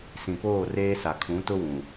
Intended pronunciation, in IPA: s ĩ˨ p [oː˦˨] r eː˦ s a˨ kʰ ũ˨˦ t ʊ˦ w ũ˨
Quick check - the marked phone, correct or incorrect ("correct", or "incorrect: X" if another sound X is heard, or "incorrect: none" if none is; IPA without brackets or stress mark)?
correct